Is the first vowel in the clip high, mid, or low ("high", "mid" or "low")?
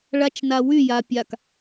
low